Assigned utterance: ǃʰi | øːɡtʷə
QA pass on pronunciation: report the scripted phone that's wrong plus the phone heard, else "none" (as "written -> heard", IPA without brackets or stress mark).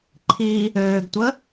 none